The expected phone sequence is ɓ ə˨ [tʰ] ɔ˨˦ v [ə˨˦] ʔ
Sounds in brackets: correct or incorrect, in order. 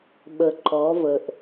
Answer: incorrect: ǃ, incorrect: ə˨

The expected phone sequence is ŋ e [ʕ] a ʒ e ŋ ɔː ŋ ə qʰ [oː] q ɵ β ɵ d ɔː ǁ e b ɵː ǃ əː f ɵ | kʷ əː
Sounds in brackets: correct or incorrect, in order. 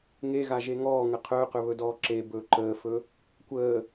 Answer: incorrect: ɣ, incorrect: ɵː

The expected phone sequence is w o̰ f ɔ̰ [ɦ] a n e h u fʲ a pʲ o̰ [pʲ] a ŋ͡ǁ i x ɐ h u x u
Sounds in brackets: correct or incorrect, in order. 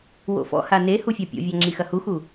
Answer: incorrect: h, incorrect: vʲ

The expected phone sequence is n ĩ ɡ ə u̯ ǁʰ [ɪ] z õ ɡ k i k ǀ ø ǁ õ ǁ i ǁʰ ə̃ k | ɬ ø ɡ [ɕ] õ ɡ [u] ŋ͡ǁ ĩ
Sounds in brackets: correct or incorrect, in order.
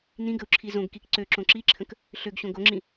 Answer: incorrect: i, correct, incorrect: o

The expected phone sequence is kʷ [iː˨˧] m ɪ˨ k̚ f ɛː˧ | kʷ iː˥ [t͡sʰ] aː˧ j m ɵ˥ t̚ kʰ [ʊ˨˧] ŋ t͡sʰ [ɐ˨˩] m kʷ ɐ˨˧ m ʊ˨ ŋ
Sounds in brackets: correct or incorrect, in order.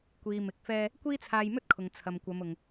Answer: incorrect: iː˨, correct, incorrect: ʊ˨, incorrect: ɐ˨

